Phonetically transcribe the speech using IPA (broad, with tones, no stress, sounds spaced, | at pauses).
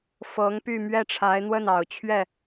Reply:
f ɤ˧˥ ŋ p y˥˧ m ɥ ɛ˥˩ ʈ͡ʂʰ a˧˥ ɪ̯ n̪ w ə˥˩ n ɑ˨˩ ʊ̯ t͡ɕʰ ɥ ɛ˥˩